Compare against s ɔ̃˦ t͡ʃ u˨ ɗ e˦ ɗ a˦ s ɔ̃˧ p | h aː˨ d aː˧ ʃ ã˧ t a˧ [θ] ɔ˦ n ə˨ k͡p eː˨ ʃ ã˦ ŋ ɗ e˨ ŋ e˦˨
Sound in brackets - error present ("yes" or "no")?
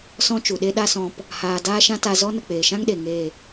yes